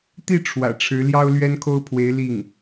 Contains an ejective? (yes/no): no